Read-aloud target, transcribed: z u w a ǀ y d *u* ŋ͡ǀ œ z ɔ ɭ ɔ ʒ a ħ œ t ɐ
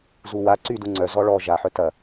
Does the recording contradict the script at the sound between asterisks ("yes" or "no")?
no